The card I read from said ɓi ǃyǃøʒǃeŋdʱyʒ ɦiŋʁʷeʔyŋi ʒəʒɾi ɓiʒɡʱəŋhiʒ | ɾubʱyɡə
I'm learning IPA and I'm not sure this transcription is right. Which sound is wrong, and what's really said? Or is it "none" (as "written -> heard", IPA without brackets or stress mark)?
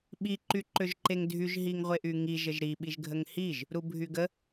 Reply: none